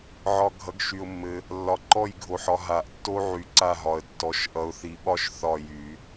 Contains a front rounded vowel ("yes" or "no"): yes